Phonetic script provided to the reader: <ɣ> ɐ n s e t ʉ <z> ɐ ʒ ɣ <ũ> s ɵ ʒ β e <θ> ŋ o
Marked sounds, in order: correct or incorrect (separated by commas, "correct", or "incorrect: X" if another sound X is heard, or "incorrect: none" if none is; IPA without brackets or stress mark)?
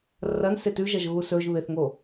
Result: incorrect: r, incorrect: ʒ, incorrect: u, correct